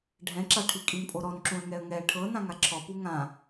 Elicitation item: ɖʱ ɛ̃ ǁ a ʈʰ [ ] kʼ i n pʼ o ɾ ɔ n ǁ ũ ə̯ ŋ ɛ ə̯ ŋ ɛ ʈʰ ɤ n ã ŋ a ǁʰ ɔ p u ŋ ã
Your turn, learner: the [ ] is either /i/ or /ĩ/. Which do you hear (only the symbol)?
i